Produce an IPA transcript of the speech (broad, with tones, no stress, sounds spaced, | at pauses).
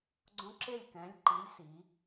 ɡ͡ǀ õ˦ ǁ e˥˩ lʲ k ɛ̃˨˥ lʲ ǃ i˨˥ lʲ s i˩˧